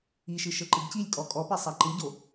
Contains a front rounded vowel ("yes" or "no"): no